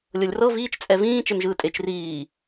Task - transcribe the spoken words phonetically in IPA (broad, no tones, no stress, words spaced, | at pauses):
lʲɤlʲrɤ viːt͡ʃt͡sʼɛ vĩːt͡ʃɛm ʒɯːtʼet͡ʃ riː